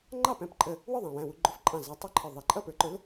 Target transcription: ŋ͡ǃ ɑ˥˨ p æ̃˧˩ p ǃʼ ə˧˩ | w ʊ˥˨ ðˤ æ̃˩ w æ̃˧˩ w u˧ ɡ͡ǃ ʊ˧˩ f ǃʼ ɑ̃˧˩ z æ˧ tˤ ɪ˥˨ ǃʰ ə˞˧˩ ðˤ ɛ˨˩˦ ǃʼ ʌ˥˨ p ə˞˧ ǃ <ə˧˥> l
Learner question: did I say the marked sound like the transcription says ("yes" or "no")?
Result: no